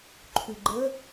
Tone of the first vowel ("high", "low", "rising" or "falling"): low